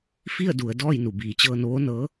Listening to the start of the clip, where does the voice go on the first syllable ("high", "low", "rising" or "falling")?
falling